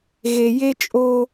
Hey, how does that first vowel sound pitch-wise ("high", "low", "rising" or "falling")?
low